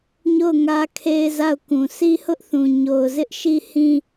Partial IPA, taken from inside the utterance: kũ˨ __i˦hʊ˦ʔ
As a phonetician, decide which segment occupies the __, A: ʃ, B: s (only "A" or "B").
B